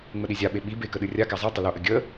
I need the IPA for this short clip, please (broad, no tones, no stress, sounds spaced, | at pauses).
ŋ͡m ə ɗ i zʲ a ɓ e ɓ i b e k ə ɗ ɨ rʲ a k a zˤ e tˤ ə l o ʔ ə ɡʲ ə